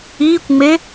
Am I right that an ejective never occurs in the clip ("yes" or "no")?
yes